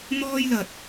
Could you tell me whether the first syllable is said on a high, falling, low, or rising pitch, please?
high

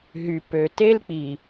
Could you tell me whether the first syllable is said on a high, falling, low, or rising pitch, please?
low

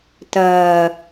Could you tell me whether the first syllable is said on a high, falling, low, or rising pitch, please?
low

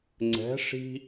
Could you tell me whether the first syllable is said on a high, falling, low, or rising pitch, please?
rising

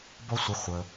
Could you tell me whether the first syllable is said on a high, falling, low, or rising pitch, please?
high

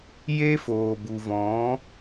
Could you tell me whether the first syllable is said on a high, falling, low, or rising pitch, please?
high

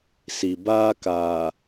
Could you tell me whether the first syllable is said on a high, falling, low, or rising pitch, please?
low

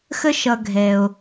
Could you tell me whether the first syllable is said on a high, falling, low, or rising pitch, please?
high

